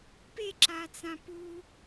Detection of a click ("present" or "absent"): present